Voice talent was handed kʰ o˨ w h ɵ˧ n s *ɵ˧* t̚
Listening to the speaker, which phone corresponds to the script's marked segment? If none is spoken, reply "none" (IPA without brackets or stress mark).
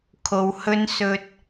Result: ɵ˧